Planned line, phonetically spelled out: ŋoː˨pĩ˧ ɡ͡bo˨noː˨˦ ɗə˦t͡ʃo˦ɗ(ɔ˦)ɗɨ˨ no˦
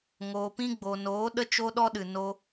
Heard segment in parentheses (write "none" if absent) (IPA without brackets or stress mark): ɔ˦